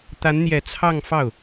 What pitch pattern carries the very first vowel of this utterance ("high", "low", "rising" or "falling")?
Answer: rising